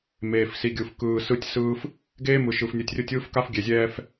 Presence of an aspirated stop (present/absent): absent